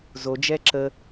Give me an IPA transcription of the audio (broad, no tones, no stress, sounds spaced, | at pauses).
z o d͡ʒ ɛ ǁ ə